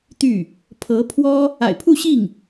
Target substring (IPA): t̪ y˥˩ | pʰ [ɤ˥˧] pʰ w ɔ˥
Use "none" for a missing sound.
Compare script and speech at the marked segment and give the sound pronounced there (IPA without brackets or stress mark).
ɤ˧˥